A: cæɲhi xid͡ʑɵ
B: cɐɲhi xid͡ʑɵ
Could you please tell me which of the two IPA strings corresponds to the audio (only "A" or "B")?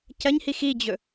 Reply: B